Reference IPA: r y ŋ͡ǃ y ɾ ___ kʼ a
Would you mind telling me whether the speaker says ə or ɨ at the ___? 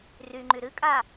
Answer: ɨ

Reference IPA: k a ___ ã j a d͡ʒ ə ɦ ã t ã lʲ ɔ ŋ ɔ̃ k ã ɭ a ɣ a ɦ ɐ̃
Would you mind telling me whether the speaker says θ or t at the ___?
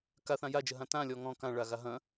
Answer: θ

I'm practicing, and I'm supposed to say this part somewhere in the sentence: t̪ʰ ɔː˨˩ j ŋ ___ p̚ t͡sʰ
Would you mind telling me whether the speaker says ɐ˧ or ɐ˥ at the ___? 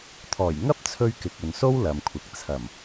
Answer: ɐ˥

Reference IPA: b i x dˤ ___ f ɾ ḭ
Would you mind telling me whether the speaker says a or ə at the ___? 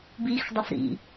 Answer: ə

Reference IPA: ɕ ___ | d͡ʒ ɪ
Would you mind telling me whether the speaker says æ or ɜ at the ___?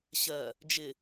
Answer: ɜ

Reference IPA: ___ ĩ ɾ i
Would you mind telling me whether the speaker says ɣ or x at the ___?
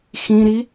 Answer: x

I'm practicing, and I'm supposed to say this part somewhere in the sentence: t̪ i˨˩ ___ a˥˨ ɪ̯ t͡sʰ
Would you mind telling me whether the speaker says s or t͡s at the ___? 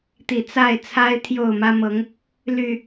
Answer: t͡s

